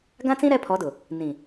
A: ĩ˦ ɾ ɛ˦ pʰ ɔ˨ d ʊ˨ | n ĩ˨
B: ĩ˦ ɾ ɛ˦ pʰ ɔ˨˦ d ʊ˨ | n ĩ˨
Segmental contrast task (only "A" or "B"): B